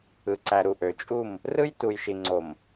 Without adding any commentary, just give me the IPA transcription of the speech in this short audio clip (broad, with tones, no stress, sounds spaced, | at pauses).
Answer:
ɯ˨ ǀ æ˨ ɾ u˨ ʔ ø˨ t͡ʃʼ u˦˨ m | r ɯ˦ j t u˨ j ʃ i˨ ŋ͡ǀ o˨ m